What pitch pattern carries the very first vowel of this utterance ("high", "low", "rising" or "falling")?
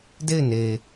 falling